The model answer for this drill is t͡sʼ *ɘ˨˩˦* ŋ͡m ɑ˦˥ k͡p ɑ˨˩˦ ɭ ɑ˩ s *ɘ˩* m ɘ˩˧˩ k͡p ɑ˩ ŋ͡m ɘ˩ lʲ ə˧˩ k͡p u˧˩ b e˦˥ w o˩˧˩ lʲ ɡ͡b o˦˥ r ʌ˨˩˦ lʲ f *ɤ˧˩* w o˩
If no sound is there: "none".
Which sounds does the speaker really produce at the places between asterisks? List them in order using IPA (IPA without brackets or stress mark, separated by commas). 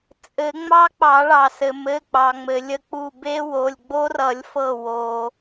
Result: ɘ˨˩˦, ɘ˩, ɤ˧˩